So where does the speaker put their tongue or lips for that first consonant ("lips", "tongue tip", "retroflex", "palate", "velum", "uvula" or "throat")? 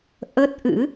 throat